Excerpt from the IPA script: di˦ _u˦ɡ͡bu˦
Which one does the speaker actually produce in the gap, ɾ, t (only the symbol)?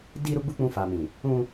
ɾ